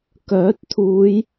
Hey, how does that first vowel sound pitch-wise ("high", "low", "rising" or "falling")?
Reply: rising